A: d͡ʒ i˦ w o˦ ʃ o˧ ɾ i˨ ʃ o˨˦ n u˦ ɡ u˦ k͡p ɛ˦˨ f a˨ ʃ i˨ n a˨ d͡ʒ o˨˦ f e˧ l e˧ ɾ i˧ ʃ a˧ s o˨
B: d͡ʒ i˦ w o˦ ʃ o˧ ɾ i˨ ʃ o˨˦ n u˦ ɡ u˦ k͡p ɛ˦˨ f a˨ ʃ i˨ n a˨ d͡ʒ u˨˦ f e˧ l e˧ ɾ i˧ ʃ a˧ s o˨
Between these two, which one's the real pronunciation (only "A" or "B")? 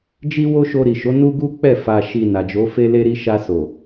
A